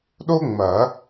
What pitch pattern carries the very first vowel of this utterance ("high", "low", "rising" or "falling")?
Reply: high